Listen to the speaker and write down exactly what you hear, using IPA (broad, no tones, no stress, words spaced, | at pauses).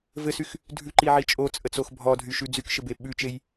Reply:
vɘsyx | dʱʉǃiʕi t͡ʃʼot͡sʼət͡sox bʱɔdʱyʃʉ d͡zykʃɘbe ɓʉt͡ʃej